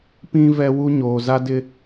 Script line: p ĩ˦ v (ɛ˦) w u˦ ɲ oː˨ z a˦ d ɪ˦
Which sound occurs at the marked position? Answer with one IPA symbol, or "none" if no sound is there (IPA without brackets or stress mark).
ɛ˦